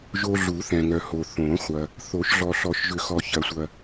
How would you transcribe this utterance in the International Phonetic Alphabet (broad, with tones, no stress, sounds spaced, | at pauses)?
ʒ o˨ ɮ u˨˩˦ θ ɛ̃˨ ŋ œ˨ h o˨ θ õ˨˩˦ χʷ ɐ˨ | θ o˨˩˦ ʃ ɮ ɔ˨ ɬ ɔ˨˩˦ ʃ ʒ ʏ˨˩˦ x ɔ˨ ç ɐ˨˩˦ sʷ ɐ˨